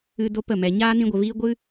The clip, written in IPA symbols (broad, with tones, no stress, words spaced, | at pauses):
ɨ˧ do˦pə˦˨ mɛ˨ɲaː˦ nĩ˦ɡʷə˧viː˦ ɡʷɨ˦